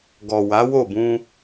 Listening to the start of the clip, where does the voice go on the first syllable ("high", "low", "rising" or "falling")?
low